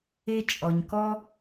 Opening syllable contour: high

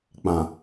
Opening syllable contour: low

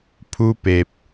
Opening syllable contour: high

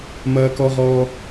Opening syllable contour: high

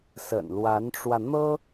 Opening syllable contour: low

